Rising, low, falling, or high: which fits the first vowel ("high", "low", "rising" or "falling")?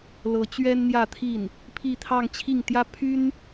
rising